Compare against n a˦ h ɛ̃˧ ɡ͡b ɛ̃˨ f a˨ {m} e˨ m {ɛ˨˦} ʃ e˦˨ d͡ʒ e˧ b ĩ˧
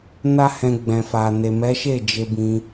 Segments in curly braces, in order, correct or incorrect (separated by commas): incorrect, correct